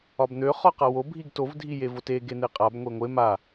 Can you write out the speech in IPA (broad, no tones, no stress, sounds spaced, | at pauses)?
ɒ b n̪ ø χ ɒ q a w o bʱ i ɡ t o v dʱ i j e v o t e ɡ e n̪ e qʼ a b ŋʷ e ŋʷ e m a